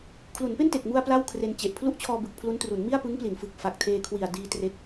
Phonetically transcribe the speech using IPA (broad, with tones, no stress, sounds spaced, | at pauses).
kʰ l u˩˦ n p e˥˩ n t e˨˩ k̚ m u˧ a̯ p l a˥˩ w kʰ r e˧ n t͡ɕ e˨˩ ʔ pʰ l u˥˩ ʔ t͡ɕʰ ɔː˧ b ɯ˨˩ k̚ pʰ l u˦˥ n t r u˩˦ n m i˥˩ a̯ p ɯ˦˥ ŋ p l i˩˦ n f ɯ˨˩ k̚ f a˨˩ k̚ tʰ eː˧ kʰ w i˨˩ a̯ d iː˧ t r e˦˥ k̚